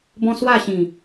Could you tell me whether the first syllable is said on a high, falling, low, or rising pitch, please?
high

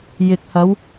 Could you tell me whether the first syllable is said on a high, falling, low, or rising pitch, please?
low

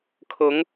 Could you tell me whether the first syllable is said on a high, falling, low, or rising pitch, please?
rising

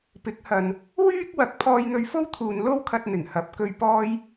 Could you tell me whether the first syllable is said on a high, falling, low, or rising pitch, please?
rising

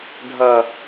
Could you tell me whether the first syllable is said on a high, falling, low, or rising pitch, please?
low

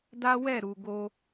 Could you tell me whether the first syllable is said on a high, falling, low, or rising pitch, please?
high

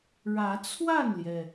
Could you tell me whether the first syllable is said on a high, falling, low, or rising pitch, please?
rising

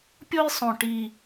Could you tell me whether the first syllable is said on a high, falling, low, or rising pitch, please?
high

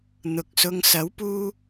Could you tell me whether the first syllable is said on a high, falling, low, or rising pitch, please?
low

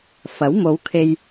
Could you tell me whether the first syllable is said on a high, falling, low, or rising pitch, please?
rising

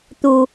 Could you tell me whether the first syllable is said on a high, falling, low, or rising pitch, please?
high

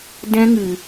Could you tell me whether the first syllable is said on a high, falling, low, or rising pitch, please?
high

